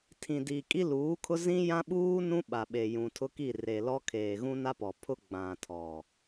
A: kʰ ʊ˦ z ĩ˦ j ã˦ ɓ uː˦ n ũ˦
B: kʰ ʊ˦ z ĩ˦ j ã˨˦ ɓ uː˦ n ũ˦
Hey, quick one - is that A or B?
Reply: A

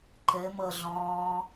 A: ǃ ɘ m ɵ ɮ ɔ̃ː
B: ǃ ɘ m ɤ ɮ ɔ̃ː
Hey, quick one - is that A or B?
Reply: B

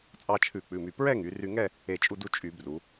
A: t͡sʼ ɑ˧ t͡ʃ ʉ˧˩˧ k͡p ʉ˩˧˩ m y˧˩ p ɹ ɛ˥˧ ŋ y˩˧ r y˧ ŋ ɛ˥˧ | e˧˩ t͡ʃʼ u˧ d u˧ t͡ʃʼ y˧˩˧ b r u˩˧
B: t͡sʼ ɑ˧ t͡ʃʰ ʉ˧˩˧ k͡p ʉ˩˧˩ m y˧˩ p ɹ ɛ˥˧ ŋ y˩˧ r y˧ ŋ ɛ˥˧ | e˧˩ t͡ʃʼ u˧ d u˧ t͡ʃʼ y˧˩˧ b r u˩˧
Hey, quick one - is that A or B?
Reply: B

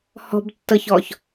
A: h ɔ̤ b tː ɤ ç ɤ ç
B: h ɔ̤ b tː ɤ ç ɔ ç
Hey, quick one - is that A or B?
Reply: B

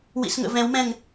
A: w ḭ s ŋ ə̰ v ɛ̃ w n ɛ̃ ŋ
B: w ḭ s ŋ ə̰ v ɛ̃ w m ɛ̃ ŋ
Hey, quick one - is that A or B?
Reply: B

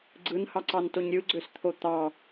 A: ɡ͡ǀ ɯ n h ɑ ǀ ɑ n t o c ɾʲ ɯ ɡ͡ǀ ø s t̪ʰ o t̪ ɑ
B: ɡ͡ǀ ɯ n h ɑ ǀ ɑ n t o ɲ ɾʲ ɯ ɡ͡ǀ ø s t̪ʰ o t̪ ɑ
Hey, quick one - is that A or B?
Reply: B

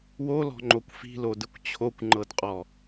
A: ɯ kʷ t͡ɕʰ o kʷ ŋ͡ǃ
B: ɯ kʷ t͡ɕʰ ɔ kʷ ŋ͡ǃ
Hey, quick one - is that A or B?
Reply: A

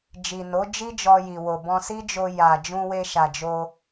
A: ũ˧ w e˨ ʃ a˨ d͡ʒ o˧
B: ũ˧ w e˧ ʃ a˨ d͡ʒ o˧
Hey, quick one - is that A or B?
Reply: B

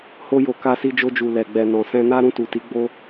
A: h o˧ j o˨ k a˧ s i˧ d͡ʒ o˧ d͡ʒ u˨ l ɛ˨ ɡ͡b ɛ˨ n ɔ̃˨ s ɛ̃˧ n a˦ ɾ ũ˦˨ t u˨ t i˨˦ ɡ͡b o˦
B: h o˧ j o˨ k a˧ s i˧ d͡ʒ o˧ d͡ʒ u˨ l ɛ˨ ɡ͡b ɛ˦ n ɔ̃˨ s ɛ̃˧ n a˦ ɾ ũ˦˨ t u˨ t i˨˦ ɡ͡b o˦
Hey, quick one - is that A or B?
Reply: A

